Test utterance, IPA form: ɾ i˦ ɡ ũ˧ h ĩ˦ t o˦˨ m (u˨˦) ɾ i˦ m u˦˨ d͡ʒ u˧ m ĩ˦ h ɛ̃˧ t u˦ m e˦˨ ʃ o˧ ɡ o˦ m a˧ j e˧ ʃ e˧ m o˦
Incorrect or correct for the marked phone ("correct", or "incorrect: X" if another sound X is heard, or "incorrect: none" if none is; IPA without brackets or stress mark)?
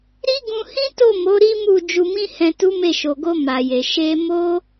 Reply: incorrect: o˨˦